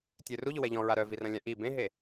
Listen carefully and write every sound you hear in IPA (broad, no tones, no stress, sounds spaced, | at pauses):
tʲ ø r u ʎ ʊ w ɛ ʎ ɔ̃ ɹ a ɾ œ v i r ɐ̃ lʲ ã ʔ i b ẽ ɦ e